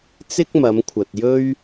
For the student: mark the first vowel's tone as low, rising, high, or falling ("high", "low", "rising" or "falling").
high